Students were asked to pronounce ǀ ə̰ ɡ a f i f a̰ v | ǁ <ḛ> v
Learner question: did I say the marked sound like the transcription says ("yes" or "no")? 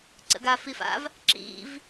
no